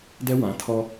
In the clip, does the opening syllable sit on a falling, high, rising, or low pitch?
high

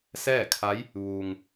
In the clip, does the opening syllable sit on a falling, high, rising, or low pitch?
falling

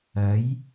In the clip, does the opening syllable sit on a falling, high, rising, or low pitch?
rising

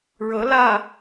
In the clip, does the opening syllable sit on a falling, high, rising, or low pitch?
rising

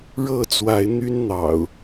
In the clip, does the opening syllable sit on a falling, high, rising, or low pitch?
falling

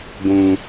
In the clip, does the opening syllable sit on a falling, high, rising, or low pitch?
low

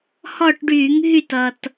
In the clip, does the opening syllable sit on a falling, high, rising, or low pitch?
falling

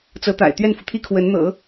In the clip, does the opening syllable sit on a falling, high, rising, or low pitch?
rising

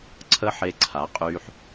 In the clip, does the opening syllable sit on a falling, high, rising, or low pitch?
high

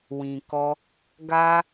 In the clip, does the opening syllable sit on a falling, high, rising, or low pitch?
low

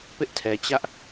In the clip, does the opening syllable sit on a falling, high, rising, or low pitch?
high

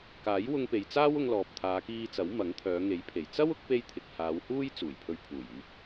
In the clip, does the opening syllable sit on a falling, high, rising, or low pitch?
rising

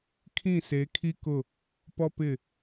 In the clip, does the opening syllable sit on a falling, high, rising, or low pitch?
falling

